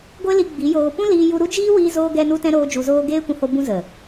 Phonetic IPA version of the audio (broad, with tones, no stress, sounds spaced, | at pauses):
ɡʷ e˦ l i˧ ɡ͡b i˨˦ j oː˧ p ũ˦ l iː˧ j u˧ ɾ u˦ d͡ʒ iː˦ w iː˧ z oː˧ ɡ ɛ˧ n u˧ t ɛ̃˧ ɾ oː˦ d͡ʒ u˧ z oː˦ ɡ eː˦ kʷ ũ˧ h o˧ b ũ˧ z ə˨